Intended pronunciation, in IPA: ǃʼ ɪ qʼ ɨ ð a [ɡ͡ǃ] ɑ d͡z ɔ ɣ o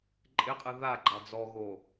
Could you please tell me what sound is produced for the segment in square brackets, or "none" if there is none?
ɡ͡ǃ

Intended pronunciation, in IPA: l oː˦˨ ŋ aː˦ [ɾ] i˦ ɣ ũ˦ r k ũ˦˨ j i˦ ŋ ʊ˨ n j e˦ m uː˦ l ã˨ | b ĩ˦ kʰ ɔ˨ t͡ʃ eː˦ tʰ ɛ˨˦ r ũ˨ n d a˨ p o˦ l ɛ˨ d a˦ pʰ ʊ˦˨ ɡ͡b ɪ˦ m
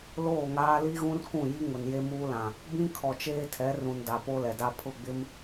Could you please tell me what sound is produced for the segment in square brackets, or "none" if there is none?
l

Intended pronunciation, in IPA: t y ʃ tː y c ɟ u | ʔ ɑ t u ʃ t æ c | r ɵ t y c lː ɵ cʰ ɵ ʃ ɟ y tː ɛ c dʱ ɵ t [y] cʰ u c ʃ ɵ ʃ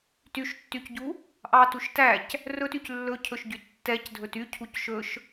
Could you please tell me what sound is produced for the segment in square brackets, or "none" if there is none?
y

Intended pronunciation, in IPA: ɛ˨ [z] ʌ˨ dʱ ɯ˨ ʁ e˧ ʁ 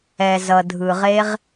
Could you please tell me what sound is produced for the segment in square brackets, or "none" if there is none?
z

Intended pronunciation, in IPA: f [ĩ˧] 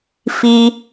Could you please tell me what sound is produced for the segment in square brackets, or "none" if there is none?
i˧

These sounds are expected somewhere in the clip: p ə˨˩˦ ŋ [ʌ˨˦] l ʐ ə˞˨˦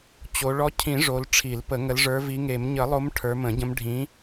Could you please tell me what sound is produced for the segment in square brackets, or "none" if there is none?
ə˨˦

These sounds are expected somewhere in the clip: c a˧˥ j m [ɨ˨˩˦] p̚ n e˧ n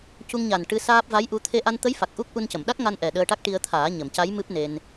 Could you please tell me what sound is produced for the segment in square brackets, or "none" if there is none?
ɨ˦˥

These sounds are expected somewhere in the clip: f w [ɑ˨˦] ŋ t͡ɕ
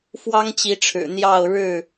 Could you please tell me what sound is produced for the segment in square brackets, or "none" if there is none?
ɑ˦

